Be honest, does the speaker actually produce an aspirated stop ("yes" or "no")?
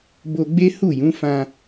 no